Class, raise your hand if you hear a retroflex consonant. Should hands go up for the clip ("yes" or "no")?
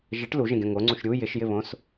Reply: yes